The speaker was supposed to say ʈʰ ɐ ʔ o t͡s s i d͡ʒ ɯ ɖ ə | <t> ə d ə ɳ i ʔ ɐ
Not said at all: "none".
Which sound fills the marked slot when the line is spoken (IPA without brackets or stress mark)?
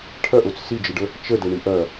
t͡ʃ